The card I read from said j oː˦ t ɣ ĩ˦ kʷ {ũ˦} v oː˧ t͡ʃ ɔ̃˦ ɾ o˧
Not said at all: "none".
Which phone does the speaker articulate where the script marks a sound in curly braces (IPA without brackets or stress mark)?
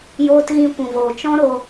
ũ˧